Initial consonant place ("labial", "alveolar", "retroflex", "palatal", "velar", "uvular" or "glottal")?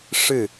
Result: retroflex